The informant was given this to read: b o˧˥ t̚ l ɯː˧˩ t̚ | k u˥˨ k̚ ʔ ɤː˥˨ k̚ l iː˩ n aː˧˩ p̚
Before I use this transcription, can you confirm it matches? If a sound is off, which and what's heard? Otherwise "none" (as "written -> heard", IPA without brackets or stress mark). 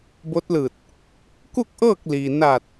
p̚ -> t̚